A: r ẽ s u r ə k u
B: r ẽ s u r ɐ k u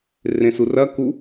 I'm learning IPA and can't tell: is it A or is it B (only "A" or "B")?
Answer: B